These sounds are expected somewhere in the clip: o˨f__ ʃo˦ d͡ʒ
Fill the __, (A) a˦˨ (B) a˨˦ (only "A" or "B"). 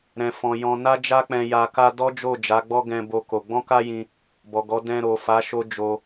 B